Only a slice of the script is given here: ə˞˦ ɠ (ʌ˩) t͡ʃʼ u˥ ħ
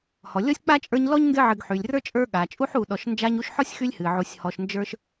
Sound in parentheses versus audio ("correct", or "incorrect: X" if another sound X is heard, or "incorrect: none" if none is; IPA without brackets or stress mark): incorrect: a˩